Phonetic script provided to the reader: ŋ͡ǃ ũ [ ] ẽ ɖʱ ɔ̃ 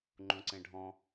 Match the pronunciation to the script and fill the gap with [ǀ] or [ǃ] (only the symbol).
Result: ǀ